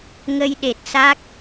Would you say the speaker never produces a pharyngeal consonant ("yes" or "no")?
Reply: yes